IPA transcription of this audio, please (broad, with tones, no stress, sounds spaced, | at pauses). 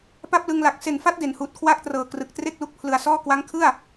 p a˥˩ p̚ l ɯ˧ ŋ l a˨˩ k̚ s e˨˩ n f a˦˥ t̚ d e˨˩ n h uː˨˩ t̚ kʰ w aː˥˩ k̚ t r ɤː˨˩ k r ɯ˨˩ k̚ t r e˥˩ k̚ l u˦˥ k̚ pʰ l ɯ˧ a̯ s ɔː˥˩ k w a˦˥ ŋ kʰ ɯ˥˩ a̯